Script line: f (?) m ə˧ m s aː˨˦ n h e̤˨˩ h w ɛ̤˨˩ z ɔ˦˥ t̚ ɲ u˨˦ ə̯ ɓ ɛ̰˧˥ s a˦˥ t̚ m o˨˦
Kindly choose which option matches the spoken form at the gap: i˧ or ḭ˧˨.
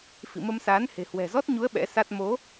ḭ˧˨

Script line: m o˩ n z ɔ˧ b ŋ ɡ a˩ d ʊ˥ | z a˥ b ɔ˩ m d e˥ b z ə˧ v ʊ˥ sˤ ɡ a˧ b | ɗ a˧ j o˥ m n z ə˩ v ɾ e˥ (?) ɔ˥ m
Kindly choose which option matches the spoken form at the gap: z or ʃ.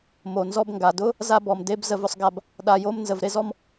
z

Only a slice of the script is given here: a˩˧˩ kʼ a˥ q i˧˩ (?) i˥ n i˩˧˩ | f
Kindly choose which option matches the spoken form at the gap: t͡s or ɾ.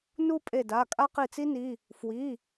t͡s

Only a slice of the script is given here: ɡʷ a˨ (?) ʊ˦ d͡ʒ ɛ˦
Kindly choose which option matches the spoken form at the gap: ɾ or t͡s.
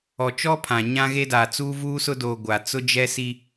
t͡s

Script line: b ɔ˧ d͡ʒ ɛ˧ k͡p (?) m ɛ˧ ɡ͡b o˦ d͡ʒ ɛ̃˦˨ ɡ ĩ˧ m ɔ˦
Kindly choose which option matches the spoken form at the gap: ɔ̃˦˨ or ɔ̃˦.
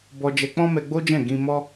ɔ̃˦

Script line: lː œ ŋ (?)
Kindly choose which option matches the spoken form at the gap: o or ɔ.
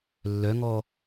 ɔ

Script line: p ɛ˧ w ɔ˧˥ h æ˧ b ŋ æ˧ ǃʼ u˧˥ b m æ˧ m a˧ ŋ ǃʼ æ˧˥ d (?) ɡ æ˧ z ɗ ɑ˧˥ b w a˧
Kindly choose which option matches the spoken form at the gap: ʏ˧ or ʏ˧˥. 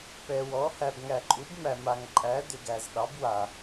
ʏ˧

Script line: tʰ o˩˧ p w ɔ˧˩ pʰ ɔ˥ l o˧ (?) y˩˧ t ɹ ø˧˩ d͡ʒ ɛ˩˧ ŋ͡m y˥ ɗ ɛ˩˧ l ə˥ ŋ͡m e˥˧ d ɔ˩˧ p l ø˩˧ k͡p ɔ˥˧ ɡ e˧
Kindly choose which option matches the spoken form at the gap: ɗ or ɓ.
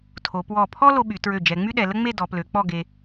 ɓ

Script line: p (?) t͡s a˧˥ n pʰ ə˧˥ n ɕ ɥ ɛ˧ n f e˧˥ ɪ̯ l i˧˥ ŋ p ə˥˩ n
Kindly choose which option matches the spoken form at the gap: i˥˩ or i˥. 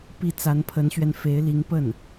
i˥˩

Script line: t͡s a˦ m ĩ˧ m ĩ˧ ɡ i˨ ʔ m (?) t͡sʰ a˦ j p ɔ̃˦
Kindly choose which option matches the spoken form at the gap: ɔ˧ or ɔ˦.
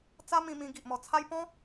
ɔ˧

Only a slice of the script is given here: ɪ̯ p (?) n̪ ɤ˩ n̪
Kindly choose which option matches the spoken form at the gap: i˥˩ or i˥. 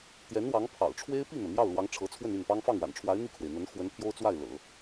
i˥˩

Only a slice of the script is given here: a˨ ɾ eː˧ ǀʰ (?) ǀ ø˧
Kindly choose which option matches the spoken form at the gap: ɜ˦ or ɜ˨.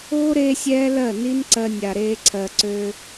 ɜ˨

